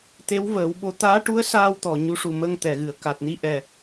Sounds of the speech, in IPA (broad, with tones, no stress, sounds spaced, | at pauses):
t̪ e˧˥ w v əː˨˩˦ w ɓ o˧˥ t̪ aː˧˥ ʈ u˧˥ ə̯ s aː˧ w t̪ ɔ˨˩ ɲ u˧˥ ʂ u˨˩ m ə˧ ŋ t̪ ɛ˨˩˨ ɣ ɨ˨˩˨ ə̯ k a˨˩ t̚ n i˧ ʔ ɛ˨˩